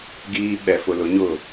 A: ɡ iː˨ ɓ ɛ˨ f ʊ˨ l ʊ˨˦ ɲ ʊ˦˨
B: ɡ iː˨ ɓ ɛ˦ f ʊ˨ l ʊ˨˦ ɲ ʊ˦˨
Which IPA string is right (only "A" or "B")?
A